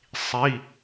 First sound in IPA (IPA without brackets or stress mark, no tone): sˤ